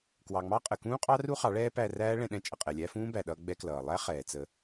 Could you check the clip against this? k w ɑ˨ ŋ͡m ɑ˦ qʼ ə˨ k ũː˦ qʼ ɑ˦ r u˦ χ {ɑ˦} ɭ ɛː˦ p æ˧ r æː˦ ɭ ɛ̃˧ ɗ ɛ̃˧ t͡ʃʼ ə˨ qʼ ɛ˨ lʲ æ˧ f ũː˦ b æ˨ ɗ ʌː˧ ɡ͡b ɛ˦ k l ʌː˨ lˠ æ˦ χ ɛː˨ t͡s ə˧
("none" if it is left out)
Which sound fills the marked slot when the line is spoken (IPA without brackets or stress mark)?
ɑ˨˦